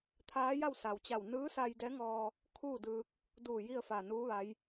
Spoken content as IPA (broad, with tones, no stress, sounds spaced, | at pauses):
t̪ʰ aː˧˥ j a˥˨ w s a˩ w t͡ɕ a˧˩ w n ɯː˧˥ s a˧ j d ɛː˧˥ ŋ ɔː˧ | kʰ uː˥˨ d ɯː˧ k̚ | d uː˧˩ j i˥˨ ə̯ f aː˧˩ n uː˧˥ ʋ a˧˥ j